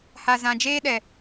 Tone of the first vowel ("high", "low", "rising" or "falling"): low